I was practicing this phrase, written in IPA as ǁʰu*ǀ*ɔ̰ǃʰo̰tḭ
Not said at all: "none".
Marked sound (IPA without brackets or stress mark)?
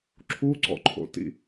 ǀ